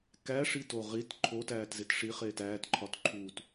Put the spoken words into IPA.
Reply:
k æ ʂ i t o ʁ i t ǃʰ o t æː t z e t ʂ i χ eː t æː t ǃʰ ɒ t ǃʰ uː t

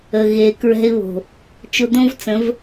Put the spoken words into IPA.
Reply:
ə˨ ɣ e˨ k ɹ ɛ̤˧ ɪ̯ β o̤˨ | t͡ʃ ʊ˧ d̪ õ˦ v t͡s ə̃˨˦ v

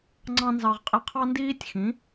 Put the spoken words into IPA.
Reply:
ŋ͡ǀ ɑ̃˥ n z ɑ˧ ʁ qʼ ɪ˥˩ qʰ ɑ˥ n d iː˥ tʲ x ĩ˩˥

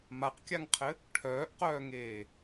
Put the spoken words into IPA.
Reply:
m a q kʲ a ŋ qʰ ɘ | ʈʰ œː ʔ q œː ŋ eː

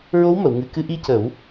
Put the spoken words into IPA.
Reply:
ɹ o˧˥ w m ə˨˩˨ w ŋ ɨ˨˩ k ɨ˧ ʔ i˧ c ə˨˩˦ w

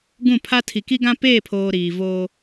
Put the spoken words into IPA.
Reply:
ɡ ũ˦˨ pʰ a˦ tʰ i˨ k i˦ ɡ ã˦ p eː˦˨ pʰ oː˨ ɾ iː˨ v oː˦

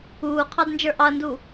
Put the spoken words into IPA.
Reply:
uː qʰ ɑ d n d͡ʒ ə˞ ʔ ɑ ɐ̯ n d u

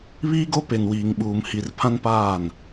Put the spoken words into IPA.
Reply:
β iː˦ ɡ o˦ p e˨ n w iː˨ ŋ ɓ uː˨ m h i˨ r pʰ ã˦ n p aː˦˨ n

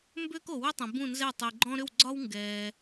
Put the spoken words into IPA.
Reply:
m b ʏː˥ k o˨ w ʏ˥ tˤ ɛ̃˨ b ũ˥˩ n z ɛ˥˩ tˤ i˨ ɡ͡ǃ ɔ̃˥ ɾ ʏ˥˩ w ɡ͡ǀ ɒ˥ w ŋ ɡ ɛː˨

